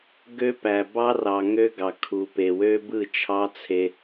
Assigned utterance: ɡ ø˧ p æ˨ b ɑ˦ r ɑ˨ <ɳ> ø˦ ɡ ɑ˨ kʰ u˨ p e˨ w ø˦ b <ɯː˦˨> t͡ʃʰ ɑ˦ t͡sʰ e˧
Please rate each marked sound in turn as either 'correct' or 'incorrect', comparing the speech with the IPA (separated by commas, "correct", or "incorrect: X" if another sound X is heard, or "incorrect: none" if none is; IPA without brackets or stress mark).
incorrect: ŋ, incorrect: ɯ˦˨